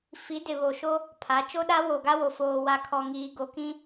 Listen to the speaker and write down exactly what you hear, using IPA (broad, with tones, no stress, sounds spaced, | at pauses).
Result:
f i˨˦ d ɪ˨ β o˨ ʃ o˦ | pʰ a˨˦ t͡ʃ o˦ ɗ a˦ w o˨ ɡ a˦ w o˨ f oː˨ w a˨ kʰ ɔ˨ ŋ iː˨ ɡ o˨ k ĩ˦